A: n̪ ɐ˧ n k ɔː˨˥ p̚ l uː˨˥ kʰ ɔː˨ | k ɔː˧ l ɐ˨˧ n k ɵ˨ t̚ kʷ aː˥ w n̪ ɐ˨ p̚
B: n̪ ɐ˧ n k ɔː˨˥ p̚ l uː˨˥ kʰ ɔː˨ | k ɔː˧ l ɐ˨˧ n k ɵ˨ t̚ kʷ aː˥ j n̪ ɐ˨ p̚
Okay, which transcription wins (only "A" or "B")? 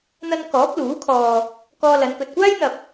B